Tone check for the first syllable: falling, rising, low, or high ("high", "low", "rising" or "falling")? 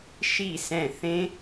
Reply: falling